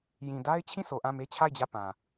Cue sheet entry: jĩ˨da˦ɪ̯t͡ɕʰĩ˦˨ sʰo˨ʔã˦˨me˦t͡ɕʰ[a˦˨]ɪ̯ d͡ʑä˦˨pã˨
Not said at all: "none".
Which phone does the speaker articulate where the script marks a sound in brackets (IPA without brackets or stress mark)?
a˦˨